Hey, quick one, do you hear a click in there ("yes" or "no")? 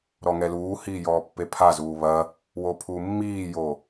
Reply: no